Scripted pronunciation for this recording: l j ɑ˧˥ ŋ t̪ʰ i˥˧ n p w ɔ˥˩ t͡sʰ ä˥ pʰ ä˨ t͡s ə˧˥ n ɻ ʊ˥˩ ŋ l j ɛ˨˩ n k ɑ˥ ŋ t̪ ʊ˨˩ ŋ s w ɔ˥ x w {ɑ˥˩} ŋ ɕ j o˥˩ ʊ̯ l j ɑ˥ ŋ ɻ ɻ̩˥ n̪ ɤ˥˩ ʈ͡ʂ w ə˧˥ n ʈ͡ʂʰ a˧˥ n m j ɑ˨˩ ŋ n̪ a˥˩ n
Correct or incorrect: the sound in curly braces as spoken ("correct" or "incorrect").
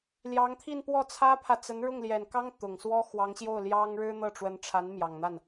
incorrect